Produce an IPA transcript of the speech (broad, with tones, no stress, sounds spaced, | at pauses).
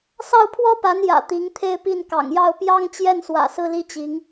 s ɑ˥˩ ʊ̯ pʰ w ɔ˥ p a˧˥ n j ä̰˨˩ t̪ i˧˥ ŋ t̪ʰ e˥˧ ɪ̯ p i˥˩ n k ɑ̰˨˩ ŋ j ɑ˥˩ ʊ̯ p j ɑ˥ ŋ t͡ɕ j ɛ˥˩ n s w ä̰˨˩ s ɹ̩˥˧ l i˥˩ t͡ɕ i˧˥ ŋ